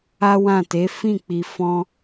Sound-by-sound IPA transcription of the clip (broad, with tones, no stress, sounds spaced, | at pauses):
a˦ w ã˦˨ t e˨˦ f ĩ˦˨ k͡p i˨ f ɔ̃˧